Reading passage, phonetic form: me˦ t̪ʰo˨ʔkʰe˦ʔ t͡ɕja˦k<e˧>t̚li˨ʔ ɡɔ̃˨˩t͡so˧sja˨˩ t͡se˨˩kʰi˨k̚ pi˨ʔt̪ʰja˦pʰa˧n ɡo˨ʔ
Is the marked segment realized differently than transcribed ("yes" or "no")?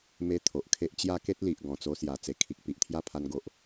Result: yes